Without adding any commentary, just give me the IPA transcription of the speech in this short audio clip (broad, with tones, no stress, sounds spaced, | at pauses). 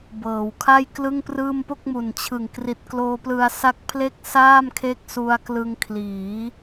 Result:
b ɤː˩˦ w kʰ a˥˩ j k l ɯ˥˩ ŋ p r ɯː˥˩ m p o˥˩ k̚ m u˨˩ n t͡ɕʰ ɯ˨˩ ŋ k r i˨˩ t̚ k l oː˧ p l ɯ˧ a̯ s a˦˥ k̚ pʰ l e˥˩ k̚ s aː˥˩ m kʰ e˦˥ k̚ s u˧ a̯ k l ɯ˧ ŋ kʰ l iː˩˦